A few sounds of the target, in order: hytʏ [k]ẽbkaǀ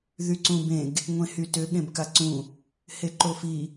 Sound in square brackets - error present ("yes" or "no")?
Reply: yes